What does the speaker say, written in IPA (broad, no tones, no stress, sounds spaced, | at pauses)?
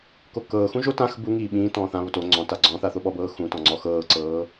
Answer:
k o k ɤː x ũ ʒ o t ã x b u ŋ iː ɓ ĩː t ɔ̃ː θ ã β o t o ŋ͡ǀ ɔ̃ t a ɡ͡ǀ ɔ̃ θ a θ o ɓ ɔ b ɤː x ũ t ɔ̃ ŋ͡ǀ ɔ x ɤː ǀ ɤː